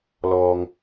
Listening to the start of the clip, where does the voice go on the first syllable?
low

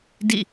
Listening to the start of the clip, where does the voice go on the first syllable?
falling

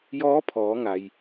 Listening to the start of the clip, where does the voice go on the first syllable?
rising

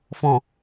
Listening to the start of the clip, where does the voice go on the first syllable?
low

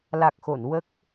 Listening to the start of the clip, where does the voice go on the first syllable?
low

